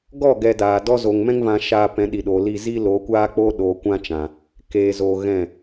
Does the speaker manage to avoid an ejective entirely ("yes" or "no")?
yes